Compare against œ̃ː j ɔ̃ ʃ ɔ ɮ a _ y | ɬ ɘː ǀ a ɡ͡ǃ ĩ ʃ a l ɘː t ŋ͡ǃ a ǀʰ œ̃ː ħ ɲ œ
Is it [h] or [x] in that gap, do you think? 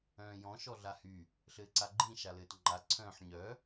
h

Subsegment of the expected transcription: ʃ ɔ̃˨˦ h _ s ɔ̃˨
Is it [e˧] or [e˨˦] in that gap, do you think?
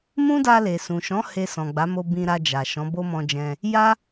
e˧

